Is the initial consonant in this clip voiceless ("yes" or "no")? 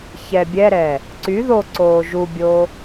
yes